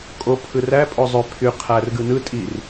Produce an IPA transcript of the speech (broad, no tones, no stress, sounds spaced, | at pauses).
kʼ o pʰ ɯ r æ pʼ o zˤ ø pʰ y qʰ æ r ɡ ɯ n ɯ tʼ i r